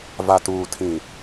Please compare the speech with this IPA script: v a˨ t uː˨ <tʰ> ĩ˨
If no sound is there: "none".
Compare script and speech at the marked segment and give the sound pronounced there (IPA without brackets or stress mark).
tʰ